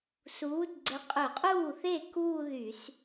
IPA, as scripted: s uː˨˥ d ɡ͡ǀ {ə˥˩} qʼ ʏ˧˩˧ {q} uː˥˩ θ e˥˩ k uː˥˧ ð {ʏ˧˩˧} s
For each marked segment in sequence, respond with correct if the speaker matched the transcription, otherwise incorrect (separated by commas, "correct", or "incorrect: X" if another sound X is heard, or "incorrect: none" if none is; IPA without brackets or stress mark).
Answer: incorrect: ə˨˥, incorrect: qʼ, incorrect: y˧˩˧